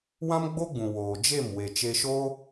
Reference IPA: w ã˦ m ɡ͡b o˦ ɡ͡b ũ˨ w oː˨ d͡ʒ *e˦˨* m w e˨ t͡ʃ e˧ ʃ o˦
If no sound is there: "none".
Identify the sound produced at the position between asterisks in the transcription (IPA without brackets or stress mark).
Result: e˦˨